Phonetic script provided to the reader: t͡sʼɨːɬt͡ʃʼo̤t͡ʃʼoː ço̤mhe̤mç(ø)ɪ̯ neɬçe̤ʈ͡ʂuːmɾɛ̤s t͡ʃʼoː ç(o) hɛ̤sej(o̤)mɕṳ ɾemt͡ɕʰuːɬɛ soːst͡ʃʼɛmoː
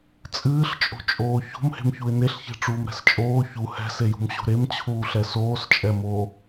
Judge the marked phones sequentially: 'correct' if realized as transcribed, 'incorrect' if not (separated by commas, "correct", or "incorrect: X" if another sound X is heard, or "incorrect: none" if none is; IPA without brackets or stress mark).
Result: incorrect: u, incorrect: u, incorrect: ṳ